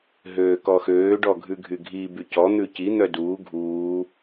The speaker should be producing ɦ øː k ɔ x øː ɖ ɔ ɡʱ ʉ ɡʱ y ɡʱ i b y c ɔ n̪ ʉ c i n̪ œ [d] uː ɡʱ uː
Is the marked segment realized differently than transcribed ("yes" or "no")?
no